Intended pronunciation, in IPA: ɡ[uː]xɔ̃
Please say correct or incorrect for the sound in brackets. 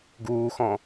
correct